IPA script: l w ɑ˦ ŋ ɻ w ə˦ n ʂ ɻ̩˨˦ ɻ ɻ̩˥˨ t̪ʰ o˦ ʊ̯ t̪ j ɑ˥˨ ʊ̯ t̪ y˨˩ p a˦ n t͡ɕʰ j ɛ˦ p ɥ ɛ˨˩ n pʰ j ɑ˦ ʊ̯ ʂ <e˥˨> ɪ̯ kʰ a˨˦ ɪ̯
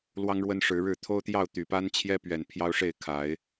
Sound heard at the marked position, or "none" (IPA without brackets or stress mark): e˥˨